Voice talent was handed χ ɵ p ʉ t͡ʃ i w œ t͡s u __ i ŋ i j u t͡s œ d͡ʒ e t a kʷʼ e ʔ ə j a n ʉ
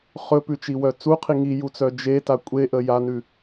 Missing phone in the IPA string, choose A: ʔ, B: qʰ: B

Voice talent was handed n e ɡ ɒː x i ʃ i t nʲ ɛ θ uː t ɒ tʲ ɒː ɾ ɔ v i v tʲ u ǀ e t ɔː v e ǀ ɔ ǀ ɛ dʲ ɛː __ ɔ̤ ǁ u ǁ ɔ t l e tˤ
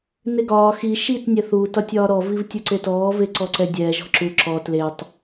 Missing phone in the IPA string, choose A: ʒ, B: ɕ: A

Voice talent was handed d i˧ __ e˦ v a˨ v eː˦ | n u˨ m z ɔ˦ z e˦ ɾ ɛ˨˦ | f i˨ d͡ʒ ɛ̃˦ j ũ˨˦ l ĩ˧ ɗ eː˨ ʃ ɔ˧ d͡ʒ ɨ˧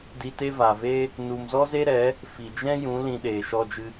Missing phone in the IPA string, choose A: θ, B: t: B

